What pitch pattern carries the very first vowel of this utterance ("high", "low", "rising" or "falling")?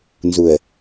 low